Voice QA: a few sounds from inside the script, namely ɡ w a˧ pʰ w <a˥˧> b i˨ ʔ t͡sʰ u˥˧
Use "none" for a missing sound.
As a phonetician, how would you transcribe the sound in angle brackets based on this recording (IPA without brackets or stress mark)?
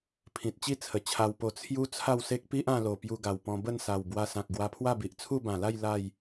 a˥˧